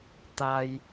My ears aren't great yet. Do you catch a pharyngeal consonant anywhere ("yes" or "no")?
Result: no